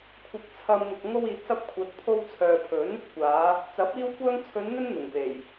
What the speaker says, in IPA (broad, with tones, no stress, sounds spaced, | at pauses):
kʷʰ ɪ˧ k̚ t͡sʰ ɐ˧ m ŋ ʊ˨ k̚ ŋ o˧ w iː˨ t̚ s ɐ˧ p̚ kʷʰ ɐ˨˥ t̚ pʰ o˧ w t͡sʰ œː˨ pʰ ɵ˨˥ n | kʷ aː˨˧ | t͡s ɐ˨˥ p̚ iː˧ w kʷ œː˧ ŋ t͡sʰ ɵ˨˧ n n̪ ɵ˥ n n̪ ʊ˨˩ ŋ p e˨˩ j